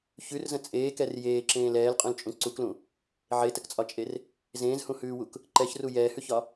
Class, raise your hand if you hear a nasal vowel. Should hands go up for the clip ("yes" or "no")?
yes